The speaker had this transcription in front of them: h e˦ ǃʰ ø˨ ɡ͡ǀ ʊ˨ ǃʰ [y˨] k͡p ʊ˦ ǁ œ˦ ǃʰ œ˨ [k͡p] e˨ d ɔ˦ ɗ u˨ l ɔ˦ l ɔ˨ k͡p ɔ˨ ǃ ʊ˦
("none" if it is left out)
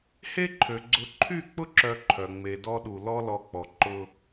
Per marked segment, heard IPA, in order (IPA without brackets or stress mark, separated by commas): y˦˨, ŋ͡m